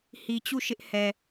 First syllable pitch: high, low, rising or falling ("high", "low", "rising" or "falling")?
low